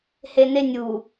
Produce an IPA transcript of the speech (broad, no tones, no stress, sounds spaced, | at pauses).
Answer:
h e n e nʲ u